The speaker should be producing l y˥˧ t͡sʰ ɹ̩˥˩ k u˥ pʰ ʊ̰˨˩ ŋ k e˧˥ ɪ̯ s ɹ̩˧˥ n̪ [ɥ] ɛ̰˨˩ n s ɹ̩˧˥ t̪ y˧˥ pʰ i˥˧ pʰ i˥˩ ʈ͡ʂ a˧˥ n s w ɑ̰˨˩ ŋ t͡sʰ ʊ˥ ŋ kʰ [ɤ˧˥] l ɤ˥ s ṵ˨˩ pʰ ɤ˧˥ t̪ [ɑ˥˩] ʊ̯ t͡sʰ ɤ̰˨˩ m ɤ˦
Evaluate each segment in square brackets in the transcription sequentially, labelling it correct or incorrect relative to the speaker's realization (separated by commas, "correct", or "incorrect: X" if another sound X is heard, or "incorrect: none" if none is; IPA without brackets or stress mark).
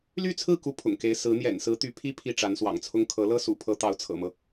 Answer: incorrect: j, correct, incorrect: ɑ˧˥